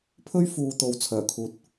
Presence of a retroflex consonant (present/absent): absent